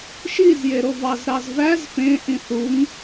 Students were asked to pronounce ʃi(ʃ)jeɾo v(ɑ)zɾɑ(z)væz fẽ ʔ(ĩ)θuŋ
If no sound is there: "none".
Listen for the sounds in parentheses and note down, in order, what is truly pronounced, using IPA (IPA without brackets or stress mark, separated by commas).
z, ɑ, z, ĩ